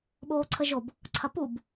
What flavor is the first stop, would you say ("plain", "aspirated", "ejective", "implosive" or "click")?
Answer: implosive